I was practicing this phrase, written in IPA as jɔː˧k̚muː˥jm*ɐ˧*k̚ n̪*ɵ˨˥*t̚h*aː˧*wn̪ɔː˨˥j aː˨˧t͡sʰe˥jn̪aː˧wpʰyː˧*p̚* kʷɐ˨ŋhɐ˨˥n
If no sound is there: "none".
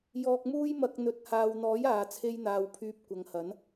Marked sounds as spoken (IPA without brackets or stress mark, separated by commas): ɐ˧, ɵ˨˥, aː˨, p̚